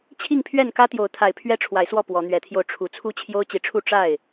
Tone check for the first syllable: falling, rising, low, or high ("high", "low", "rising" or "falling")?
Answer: falling